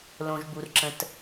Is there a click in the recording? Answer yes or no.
yes